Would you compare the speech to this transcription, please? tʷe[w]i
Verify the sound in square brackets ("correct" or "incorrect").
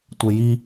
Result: incorrect